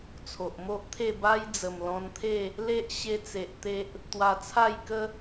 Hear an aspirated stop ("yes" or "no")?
yes